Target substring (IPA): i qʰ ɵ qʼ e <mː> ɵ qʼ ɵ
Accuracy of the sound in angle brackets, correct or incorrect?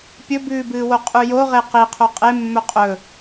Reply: correct